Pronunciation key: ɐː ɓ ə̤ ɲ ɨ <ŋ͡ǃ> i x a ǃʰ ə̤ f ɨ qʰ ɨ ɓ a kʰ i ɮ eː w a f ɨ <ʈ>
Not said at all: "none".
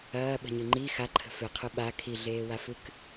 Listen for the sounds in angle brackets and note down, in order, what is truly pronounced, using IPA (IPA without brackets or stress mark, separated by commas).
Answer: ŋ͡ǃ, k